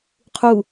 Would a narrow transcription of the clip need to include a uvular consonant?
yes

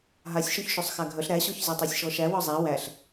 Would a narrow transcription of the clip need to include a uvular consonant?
no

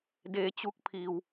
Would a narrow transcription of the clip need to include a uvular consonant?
no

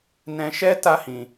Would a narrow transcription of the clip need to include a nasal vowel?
yes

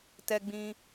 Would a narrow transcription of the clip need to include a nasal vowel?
yes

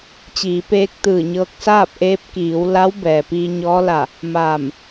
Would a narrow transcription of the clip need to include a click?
no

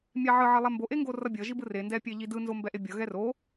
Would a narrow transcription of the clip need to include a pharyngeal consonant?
yes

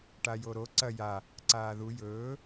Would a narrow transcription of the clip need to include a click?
yes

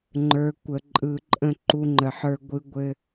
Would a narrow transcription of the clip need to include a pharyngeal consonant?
yes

